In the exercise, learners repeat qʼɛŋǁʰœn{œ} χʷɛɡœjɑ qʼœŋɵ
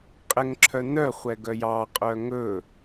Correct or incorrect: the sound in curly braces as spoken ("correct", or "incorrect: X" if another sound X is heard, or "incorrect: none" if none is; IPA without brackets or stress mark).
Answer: correct